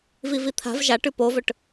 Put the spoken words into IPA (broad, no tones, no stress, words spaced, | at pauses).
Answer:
vivit̪ʰa̤v ʒaʈʉ povɵʈ